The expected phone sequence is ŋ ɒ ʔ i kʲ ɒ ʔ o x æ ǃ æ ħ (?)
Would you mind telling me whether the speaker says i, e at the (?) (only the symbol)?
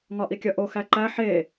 e